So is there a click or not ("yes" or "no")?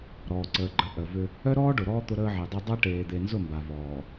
yes